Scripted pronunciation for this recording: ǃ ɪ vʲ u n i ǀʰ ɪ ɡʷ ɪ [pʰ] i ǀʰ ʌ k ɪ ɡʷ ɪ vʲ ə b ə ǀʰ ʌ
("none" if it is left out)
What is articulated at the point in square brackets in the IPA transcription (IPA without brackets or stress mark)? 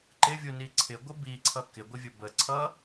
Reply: b